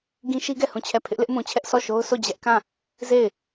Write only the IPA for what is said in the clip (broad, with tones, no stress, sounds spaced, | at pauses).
ɡ ĩ˦ ʃ i˦ ɡ ɛ˦˨ h ũ˦˨ t͡ɕʰ ɛ˦˨ pʰ ɪ˦ ʔ l ɪ˦ ʔ m ũ˨ t͡ɕʰ ɛ˦ ʔ sʰ ɔ˦˨ ʃ o˦ ʊ̯ sʰ o˦˨ d͡ʑ ɛ˦ ʔ k ã˦˨ | z e˦˨ ɪ̯